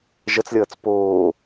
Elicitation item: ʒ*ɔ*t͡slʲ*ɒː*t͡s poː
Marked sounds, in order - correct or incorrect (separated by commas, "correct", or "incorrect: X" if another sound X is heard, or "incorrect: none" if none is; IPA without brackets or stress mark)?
incorrect: ʌ, incorrect: ʌː